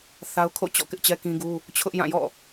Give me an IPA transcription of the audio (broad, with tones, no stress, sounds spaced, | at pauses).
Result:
θ a˦ ʊ̯ kʰ o̰˦˨ t͡ɕ ɔ̰˦˨ k ɪ˦ ʔ t͡ɕ ɛ˦ k ĩ˦ ɡ u˦ | t͡ɕʰ ʊ˦ ʔ j ã˦˨ j ɔ̰˦˨